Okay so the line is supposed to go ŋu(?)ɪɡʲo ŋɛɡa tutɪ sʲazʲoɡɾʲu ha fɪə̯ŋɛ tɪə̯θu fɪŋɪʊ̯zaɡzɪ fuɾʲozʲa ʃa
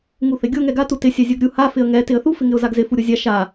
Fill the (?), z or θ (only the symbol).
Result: θ